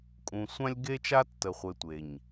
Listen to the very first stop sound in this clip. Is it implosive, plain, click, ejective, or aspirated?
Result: ejective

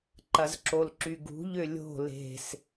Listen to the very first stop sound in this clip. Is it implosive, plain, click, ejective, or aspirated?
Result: click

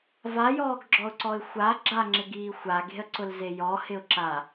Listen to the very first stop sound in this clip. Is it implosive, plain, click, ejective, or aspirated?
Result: plain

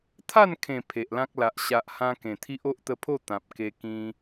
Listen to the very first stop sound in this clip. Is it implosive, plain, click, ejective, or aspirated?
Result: aspirated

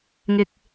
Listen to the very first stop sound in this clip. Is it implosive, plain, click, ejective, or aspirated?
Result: plain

